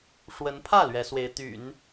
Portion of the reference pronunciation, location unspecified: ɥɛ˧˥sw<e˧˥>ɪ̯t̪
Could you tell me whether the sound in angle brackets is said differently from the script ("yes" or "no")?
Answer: no